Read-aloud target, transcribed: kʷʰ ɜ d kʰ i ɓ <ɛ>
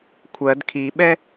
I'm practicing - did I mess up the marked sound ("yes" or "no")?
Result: no